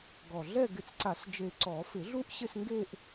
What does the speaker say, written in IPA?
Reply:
ɡ ɔ˨˩ ɮ ɛ˥˧ ɡ ɪ˨˩˦ t͡s ǀ a˨˩˦ s d͡ʒ e˨˩ ǀ ɔ˨˩˦ f ɪ˨˩˦ ɮ u˥˧ ʔ ɕ ɪ˥˧ s ŋ ɡ e˥˧ ʔ

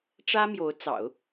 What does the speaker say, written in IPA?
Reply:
ʈ͡ʂ ä˥ m j o˧˥ ʊ̯ t͡s ɑ̰˨˩˦ ʊ̯

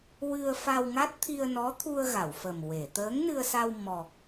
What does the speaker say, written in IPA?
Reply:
w ɨ˧ ə̯ f a˧ w ŋ a˦˥ t̚ t̪ʰ i˧ ə̯ n ɔ˧˥ t̪ʰ u˧ ə̯ ɣ a˨˩˨ w f ə˨˩ m w e˨˩˨ t̪ əː˧˥ ŋ n ɨ˧ ə̯ s a˧ w m ɔ˨˩ k̚

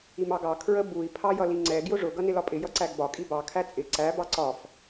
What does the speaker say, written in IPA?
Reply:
i m ɑ ɡ ɑ kʰ ɹ ə b u i̯ pʰ ɑ j ʌ l i ŋ͡ǀ ɛ ɡ j ʊ ʐ ʊ ɡ ʌ n ɪ l ɒ pʼ ɪ j ʌ ǀ æ ɡ b ɒ kʼ i b ɑ kʰ æ t͡sʼ ɪ ǀ æ b ɑ ǀ ɒ f

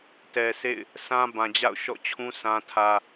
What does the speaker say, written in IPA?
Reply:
t ɛ˨ s ḛ˦˨ ɪ̯ | s ã˦ b ã˨ d͡ʑ a̰˦˨ ʊ̯ ʃ ɔ̰˦˨ t͡ɕʰ ũ˦ s ã˦ tʰ ä˦

